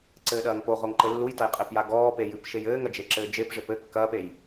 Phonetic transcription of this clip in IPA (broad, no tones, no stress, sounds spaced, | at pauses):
ǀ ɘː ɗ ɐː ŋ p o ʁ o ŋ ǃ ɘ lː u j t ɐ j qʼ e p j a ɡ ɔː p e j ɨ p ʃ e j ɘː ŋ ɐ d͡ʒ e ǁ ɘː d͡ʒ e p ʐ e p ɘ kː ɐː p e j